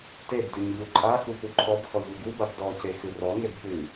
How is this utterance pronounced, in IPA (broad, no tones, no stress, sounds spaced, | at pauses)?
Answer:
t e b d ʉ ɲ ʎ u ǃʼ a x u p u ǃʰ ɔ b x ɔ ʎ u ɡ u b a b d ɔ c e x ʉ r ɔ ŋ e b p ʉ